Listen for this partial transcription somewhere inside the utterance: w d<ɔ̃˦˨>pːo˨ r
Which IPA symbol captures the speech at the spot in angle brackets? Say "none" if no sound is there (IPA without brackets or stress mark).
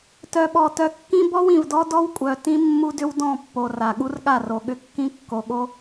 ɔ̃˦˨